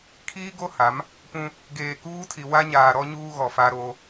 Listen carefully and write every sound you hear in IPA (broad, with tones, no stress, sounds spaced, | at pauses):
kʰ iː˦ ɡ o˦ h a˨˦ m | p ũ˦ | ɡ eː˨ k uː˦ tʰ i˨ w a˦ ɲ aː˨ ɾ ɔ˦ ɲ uː˦ ɣ ɔ˨ f a˦ ɾ o˦